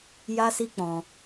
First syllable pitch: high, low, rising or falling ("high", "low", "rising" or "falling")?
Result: high